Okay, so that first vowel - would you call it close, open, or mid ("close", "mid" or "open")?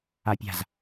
open